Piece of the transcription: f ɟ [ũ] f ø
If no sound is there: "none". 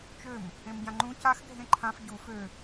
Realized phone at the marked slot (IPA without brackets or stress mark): u